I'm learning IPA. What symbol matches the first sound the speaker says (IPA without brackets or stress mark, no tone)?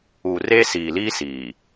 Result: uː